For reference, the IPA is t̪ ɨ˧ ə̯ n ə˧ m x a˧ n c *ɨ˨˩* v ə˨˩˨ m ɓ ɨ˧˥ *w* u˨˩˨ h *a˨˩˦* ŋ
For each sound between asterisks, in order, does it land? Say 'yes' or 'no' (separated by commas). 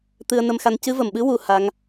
no, yes, no